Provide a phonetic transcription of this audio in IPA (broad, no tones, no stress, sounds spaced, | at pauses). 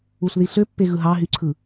u ɬ ð i ɬ ø pː e ɣ ɯ ɦ ɑ ɦ y ǀʰ ɯ